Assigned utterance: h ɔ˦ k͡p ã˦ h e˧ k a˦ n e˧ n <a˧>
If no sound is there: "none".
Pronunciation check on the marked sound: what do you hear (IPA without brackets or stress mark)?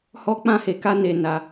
a˧